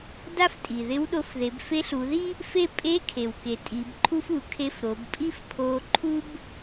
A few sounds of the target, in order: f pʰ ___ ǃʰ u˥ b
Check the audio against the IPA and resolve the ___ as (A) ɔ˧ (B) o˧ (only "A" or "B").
B